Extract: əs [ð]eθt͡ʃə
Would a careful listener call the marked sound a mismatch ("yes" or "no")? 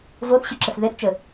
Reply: no